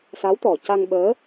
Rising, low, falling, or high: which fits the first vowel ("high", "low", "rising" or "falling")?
rising